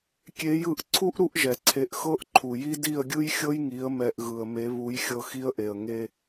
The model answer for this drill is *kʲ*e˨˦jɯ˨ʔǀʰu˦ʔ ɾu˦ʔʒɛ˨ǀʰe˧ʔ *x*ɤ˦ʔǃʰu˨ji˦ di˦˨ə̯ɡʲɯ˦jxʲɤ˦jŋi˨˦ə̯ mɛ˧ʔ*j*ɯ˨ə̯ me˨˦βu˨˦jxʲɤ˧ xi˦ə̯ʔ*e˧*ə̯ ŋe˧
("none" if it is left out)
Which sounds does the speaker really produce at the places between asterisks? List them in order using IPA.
kʲ, x, ɣ, e˨

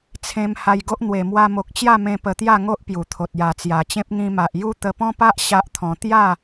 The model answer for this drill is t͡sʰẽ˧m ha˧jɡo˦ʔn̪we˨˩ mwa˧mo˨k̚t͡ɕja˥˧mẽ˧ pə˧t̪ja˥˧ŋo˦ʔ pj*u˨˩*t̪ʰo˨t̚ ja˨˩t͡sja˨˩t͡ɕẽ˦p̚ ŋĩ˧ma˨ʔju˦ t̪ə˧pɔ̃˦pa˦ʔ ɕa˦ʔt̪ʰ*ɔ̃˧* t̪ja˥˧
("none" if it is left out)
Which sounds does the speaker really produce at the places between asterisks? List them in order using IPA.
u˨˩, ɔ̃˧

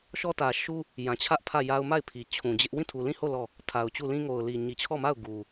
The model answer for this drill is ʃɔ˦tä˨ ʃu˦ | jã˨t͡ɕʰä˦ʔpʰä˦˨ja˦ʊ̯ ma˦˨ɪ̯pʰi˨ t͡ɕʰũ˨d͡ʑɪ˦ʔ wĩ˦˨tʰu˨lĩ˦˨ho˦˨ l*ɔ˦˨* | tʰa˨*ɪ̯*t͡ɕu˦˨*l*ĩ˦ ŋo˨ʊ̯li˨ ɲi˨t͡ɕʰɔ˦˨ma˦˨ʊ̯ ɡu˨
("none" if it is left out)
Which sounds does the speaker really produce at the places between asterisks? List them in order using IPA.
ɔ˦˨, ʊ̯, l

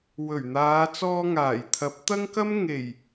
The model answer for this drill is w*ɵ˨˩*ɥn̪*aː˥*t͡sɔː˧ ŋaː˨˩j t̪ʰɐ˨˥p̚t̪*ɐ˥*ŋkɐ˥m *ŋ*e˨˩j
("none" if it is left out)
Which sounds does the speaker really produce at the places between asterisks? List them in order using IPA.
ɵ˨˩, aː˨˧, ɐ˥, ŋ

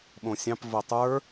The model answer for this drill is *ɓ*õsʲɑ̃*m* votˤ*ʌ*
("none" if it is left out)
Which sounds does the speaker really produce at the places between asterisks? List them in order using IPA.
ɓ, p, ə˞

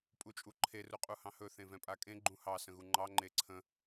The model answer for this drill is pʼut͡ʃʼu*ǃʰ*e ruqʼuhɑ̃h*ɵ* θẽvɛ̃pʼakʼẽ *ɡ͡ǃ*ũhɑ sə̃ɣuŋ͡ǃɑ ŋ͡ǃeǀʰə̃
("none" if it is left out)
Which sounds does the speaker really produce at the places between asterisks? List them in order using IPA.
ǃʰ, ɵ, ɡ͡ǃ

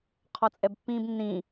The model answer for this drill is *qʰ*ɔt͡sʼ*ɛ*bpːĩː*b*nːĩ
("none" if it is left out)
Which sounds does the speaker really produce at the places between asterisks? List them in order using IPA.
qʰ, ɛ, b

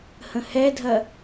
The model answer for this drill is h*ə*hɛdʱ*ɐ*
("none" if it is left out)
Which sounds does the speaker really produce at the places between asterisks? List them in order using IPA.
ə̃, ɐ

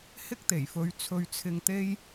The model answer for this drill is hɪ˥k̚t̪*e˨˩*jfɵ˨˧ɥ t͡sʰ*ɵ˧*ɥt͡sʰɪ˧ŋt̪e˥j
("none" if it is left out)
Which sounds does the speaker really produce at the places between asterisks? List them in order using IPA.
e˨˩, ɵ˧

